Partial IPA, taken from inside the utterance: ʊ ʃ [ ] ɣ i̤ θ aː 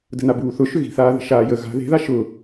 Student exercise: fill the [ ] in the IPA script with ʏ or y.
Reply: ʏ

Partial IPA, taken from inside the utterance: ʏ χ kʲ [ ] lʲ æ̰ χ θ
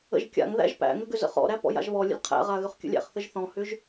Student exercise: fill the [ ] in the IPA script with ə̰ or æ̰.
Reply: ə̰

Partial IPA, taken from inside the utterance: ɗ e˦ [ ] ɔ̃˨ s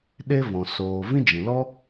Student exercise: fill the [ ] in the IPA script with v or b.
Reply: v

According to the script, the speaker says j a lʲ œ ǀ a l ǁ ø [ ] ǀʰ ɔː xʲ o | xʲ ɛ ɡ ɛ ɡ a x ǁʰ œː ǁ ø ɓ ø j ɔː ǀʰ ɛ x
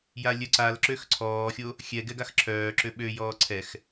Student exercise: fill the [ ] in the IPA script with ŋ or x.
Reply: x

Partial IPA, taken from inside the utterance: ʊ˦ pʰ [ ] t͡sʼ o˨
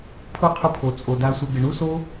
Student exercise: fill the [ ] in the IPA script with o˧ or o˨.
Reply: o˨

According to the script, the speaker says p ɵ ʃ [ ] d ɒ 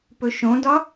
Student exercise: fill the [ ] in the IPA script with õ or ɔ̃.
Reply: õ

